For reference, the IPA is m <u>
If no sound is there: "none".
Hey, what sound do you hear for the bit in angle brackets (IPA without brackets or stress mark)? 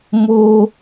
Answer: o